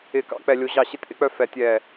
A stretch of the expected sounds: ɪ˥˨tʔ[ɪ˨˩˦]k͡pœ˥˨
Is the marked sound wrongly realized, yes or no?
yes